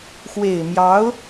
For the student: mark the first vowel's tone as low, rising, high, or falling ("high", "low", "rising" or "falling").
low